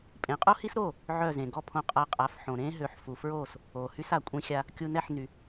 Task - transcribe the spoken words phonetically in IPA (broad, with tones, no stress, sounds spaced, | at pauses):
pʼ ẽ˩˥ qʼ o˥ h i˥ s ɾ oː˥˩ | ʕ œ˥˩ z ẽ˩ ɡ ɔ˥˩ pʰ õ˧ qʼ a˧ qʼ a˩˥ f ħ õ˩ ɾ ẽː˥ ɦ ø˩˥ ħ f u˩ f ɹ oː˥˩ s | oː˩ h y˥ s a˩ kʷʼ ĩ˧ xʲ a˧ | kʲ u˧ n ɛ˥˩ ħ n y˩